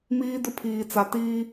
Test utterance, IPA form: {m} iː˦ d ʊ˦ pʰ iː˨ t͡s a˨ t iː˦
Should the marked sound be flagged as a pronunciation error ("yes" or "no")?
no